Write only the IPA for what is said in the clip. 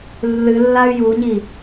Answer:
lː ɨ lː a y̯ j u ɲ i

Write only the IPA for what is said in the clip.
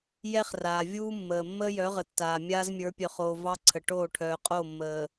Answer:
j ɛ˦ χ r aː˨ vʲ uː˦ mː əː˨ mː əː˦ j œ˨˦ ʁ ə˨ tː aː˨ mʲ aː˦ z mʲ ə˞˨˦ pʲ œ˨ χ oː˨ v ɑ˦ ǀʰ ə˨ ʈ oː˦˨ ʈʰ œː˨ qʼ o˦˨ mː əː˨

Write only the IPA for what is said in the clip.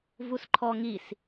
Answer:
v u s ǃʰ ɔ ŋ i s

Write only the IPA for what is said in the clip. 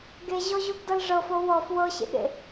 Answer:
ɡ e ʑ ɔ ʑ u ɡ d ɤ l ʐ ɤ f o w ɔ f w ɤ ɕ ḛ ɠ ḛ

